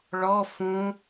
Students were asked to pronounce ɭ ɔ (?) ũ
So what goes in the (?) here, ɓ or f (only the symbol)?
f